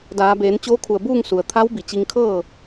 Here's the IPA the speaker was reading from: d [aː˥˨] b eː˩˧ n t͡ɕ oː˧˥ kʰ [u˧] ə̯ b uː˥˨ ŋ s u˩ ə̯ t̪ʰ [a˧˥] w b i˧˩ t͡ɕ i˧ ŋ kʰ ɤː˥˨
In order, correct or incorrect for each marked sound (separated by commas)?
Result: incorrect, incorrect, correct